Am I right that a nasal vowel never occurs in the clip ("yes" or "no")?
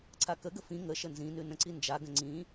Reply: no